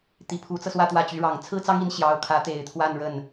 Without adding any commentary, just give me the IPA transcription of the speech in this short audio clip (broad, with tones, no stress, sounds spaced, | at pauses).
t̪ i˧˥ pʰ u˧˥ t͡s ɤ˧ s w ä˥˧ t̪ w ä˥˩ t͡ɕ y˧˥ ɻ ɑ˨˩ ŋ t͡sʰ ɹ̩˥ t͡s ɑ˥ ŋ i˧˥ n ɕ j ɑ˧˥ ʊ̯ kʰ ä˧˥ t̪ e˨˩ ɪ̯ t̪ʰ w a˥˧ n ɻ ə˥˩ n